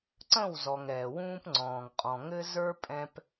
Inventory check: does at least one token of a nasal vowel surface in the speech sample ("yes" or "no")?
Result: yes